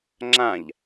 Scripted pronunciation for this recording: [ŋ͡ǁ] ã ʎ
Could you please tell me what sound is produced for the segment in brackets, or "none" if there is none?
ŋ͡ǁ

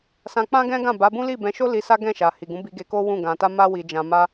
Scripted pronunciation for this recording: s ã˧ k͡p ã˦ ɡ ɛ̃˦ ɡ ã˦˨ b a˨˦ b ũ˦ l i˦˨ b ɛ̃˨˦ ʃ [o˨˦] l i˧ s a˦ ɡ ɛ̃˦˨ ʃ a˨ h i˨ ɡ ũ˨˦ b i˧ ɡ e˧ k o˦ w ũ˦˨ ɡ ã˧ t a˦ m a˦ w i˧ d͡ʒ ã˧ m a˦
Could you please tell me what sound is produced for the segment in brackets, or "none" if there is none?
o˦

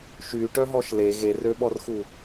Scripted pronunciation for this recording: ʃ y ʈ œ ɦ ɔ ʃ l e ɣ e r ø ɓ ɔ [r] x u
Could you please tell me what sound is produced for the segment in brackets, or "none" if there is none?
r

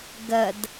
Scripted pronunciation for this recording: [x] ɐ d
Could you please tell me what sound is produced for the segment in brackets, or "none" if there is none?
ɡ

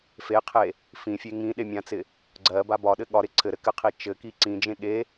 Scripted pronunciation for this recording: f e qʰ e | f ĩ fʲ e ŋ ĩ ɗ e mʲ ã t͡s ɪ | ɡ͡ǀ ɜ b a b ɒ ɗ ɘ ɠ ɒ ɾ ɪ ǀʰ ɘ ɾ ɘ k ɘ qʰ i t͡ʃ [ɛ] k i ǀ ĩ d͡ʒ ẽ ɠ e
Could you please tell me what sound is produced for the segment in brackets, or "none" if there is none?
ɘ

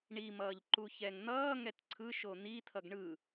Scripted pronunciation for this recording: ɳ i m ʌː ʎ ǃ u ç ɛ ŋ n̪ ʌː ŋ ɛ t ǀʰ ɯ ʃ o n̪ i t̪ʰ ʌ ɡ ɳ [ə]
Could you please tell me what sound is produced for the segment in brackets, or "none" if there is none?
ɯ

